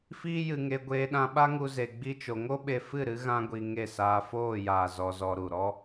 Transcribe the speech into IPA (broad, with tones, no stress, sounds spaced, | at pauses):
f iː˦ j ɨ˧ ŋ e˧ ɡʷ eː˧ ɗ ã˧ ɓ a˦ ŋ u˧ z e˧ ɡ͡b i˦ t͡ʃ o˧ ŋ o˦ ɓ e˧ f ɨ˦˨ ɾ ɨ˧ ɣ ã˦ ɡʷ i˧ ŋ e˦˨ s aː˧ f oː˦˨ j aː˨ z ɔ˧ z ɔ˧ ɾ u˨ ɾ ɔ˦